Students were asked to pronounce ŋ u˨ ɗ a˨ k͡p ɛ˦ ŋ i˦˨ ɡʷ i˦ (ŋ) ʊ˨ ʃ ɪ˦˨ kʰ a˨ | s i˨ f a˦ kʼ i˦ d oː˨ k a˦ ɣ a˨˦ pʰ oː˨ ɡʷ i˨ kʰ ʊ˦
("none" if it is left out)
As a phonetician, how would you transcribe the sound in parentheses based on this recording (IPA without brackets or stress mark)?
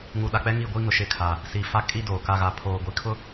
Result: ŋ